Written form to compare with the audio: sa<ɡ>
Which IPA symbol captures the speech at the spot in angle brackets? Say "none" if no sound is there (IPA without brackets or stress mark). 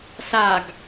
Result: ɡ